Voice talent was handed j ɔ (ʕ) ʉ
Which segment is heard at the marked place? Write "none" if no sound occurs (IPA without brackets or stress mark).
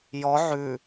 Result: ʕ